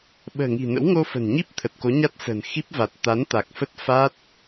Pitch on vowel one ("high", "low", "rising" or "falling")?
low